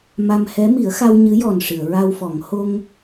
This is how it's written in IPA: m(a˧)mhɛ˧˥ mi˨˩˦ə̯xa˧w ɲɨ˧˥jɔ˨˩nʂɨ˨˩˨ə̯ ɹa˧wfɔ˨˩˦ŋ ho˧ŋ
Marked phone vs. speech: correct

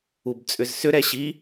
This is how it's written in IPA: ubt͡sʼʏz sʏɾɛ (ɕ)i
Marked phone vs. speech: correct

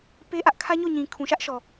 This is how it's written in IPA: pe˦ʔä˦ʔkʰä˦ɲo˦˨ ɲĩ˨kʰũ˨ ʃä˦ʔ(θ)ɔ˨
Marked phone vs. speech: incorrect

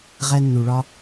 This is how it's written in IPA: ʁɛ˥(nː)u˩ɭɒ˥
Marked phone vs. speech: correct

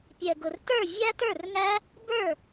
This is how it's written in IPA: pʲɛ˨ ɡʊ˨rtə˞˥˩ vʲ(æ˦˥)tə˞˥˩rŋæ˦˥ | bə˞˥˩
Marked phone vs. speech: correct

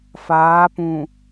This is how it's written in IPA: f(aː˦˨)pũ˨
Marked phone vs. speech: incorrect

